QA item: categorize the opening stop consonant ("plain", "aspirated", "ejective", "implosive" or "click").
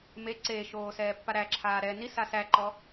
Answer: click